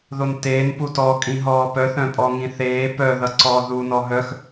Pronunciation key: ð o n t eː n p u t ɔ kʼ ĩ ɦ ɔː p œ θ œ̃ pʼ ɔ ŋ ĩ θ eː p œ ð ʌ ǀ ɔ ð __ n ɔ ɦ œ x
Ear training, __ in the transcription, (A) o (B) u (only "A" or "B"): B